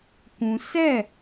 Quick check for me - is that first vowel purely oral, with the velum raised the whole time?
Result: no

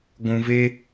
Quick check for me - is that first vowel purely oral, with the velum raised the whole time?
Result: no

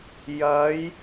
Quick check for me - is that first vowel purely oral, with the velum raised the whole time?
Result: yes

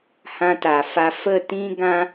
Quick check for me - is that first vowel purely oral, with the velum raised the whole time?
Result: no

